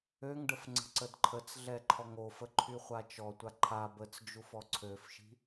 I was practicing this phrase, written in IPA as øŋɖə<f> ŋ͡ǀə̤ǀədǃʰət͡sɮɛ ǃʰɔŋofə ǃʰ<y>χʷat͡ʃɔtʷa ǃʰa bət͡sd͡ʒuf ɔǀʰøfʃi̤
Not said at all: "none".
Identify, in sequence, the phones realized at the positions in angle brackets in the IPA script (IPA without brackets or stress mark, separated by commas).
f, y